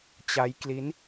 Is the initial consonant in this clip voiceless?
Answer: yes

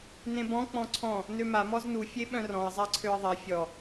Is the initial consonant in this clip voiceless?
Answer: no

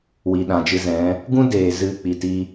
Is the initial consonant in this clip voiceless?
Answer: no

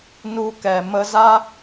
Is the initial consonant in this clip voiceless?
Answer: no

